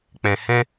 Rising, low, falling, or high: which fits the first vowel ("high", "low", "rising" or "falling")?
low